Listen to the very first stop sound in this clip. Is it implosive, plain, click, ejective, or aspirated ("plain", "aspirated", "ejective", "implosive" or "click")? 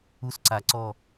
click